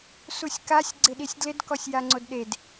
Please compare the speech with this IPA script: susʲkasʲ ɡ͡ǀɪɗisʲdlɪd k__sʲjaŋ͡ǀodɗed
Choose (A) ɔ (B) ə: A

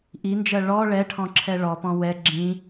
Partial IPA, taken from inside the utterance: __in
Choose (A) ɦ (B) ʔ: B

